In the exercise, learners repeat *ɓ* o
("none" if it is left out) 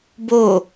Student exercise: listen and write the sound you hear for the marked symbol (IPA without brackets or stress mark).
b